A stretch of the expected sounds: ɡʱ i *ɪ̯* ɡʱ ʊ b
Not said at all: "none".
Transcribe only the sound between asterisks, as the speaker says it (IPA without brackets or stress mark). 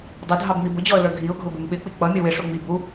ʊ̯